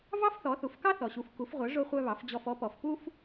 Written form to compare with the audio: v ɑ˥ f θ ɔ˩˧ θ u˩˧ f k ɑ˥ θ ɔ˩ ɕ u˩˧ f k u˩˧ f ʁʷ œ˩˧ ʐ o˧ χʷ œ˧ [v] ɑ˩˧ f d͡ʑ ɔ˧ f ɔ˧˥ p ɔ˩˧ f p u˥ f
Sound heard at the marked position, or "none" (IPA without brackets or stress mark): β